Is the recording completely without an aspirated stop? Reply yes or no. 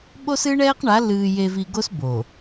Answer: yes